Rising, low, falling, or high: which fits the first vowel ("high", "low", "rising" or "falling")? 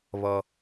low